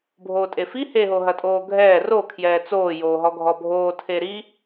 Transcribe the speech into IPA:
bʱ oː tʼ e f i h e ɦ o ɦ ɐ tʼ oː ɡʱ ɛː r o kʰ j ɛː t͡s oː j oː ɦ ɔ ɡʱ ɔ bʱ oː tʰ e ɾ i

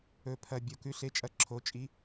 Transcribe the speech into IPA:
ɵ˨˩ pʰ ɐ˨˩ bʲ o˨˩ k ʉ˩˥ ɬ e˩˥ t͡ʃʼ ɐ˩˥ ǁʰ o˩˧ t͡ʃʼ i˩˧

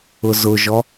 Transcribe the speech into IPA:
ʊ z ʊ ʒ ɔ

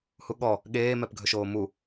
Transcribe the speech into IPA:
h u ɠ ɔ | ɠ eː m ɛ p ɡʱ ɵ ʃ oː m u

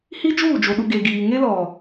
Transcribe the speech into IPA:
h i˦ d͡ʒ uː˦˨ d͡ʒ o˨ ɗ u˨ ɡ e˨ ɡ iː˨ ŋ e˦ l ɔ˨

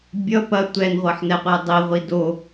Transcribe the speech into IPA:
bʲ ʌ p ɐ tʷ ɛ n ʁʷ ʌ ħ n ɛ qʷ ɛ dˤ i ʁʷ i d o

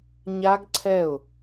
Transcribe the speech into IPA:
ɲ a˦˥ ɡ ǀʰ ɛ˧˩ ʊ̯

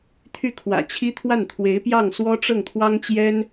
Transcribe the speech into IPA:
t̪ʰ y˥˩ kʰ w ä̰˨˩ t͡ɕʰ i˥ t̪ʰ w a˥˩ n t̪ʰ w e˧˥ ɪ̯ p j ɑ˥˩ ŋ s w ɔ˥ ʈ͡ʂ ɤ˥˩ ŋ t̪ʰ w ɑ˥ ŋ t͡ɕ j ɛ˥ n

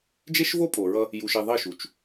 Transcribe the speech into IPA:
d͡ʒ e˦ ʃ v o˦ pʼ o˨ ɹ ʌ˦ | j u˨ ʃ i˨ ðˤ i˦˨ ʃ u˨ t͡ʃ

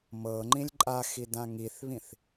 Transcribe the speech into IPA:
m ɤ ŋ͡ǃ ĩ lʲ ǃʼ a x i d ã ŋ i θ β ĩ θ

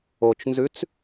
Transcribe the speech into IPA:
o t͡ʃ n z ʉ t͡s

